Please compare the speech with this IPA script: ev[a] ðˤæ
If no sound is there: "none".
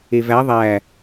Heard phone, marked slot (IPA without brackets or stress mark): æ